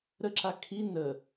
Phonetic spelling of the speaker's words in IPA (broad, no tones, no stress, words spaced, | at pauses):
ɾəǁa kʰi nə